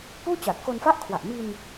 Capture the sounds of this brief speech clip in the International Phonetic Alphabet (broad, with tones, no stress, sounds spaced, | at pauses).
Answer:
p uː˥˩ t͡ɕ a˨˩ t̚ k o˧ n f a˥˩ ʔ kʰ w a˨˩ ʔ m i˧ n